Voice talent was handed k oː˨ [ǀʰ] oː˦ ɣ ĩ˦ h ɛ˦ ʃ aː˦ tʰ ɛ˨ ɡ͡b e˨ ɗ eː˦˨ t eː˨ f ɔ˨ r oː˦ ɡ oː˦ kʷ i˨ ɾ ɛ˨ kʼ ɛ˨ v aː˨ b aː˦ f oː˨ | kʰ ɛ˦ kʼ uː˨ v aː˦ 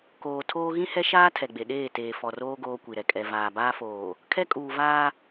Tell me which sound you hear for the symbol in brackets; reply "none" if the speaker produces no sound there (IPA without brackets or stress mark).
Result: tʰ